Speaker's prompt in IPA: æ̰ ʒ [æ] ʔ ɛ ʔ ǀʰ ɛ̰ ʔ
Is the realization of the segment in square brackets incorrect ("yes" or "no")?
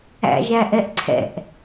no